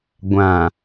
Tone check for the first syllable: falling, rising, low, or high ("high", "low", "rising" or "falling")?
low